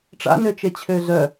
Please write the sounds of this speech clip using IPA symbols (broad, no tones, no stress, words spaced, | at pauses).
ʈ͡ʂa̰nøt͡ʃet͡ɕʰø zœ